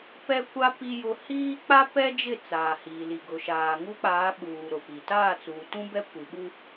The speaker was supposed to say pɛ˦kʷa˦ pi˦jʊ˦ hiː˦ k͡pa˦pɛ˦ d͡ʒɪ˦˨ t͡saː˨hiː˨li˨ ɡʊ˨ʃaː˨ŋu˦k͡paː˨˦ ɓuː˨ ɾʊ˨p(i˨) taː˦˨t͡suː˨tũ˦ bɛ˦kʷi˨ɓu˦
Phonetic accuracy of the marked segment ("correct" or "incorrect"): correct